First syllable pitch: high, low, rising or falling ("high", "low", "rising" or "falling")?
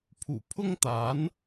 low